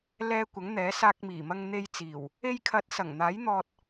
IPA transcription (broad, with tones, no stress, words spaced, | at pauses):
lɛː˧ kʷɐ˨˥ŋn̪ɛː˨˥saː˧k̚ miː˨˩mɐ˧ŋ n̪e˧jt͡siː˨˩w | e˧jkʰɐ˨˥t̚ sɐ˨˩ŋn̪aː˨˥jn̪ɔː˧t̚